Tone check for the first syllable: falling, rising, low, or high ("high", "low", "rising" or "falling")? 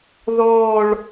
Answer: falling